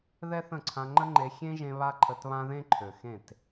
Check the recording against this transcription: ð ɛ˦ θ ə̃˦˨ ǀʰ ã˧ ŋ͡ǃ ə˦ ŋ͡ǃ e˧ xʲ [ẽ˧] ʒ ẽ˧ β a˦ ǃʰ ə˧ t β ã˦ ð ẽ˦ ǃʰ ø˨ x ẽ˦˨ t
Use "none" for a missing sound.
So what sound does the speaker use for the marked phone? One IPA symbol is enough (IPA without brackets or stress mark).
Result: ẽ˦